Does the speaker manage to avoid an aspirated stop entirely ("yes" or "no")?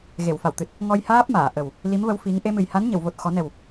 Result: yes